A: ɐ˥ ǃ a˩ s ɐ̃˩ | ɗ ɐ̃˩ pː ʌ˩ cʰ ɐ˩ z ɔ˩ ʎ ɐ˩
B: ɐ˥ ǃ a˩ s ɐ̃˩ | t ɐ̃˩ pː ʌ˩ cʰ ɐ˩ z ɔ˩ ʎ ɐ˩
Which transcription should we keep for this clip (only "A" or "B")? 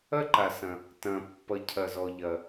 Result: B